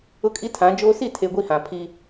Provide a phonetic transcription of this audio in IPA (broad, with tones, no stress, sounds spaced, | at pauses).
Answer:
ʊ˦ kʼ i˦ tʰ ã˨˦ d͡ʒ oː˦ s i˦˨ tʰ e˨ ɡʷ i˦ h ã˨ pʰ i˦